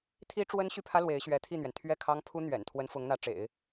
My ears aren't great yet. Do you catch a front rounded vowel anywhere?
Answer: yes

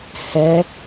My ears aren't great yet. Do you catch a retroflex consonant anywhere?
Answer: no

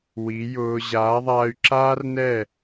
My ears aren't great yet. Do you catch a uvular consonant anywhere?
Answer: no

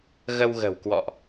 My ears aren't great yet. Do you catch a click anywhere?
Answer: no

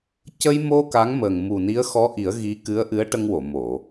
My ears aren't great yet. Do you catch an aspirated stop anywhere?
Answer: no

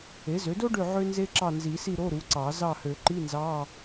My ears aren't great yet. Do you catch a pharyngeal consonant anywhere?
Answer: yes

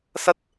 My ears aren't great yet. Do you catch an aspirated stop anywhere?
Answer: no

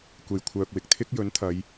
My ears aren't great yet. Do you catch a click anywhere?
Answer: no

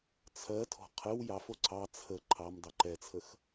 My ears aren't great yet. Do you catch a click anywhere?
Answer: yes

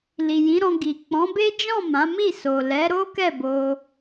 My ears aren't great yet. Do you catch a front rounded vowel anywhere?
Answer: no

